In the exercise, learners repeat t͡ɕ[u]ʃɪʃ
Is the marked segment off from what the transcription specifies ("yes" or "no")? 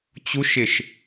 no